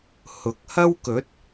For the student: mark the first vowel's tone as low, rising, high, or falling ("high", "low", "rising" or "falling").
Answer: rising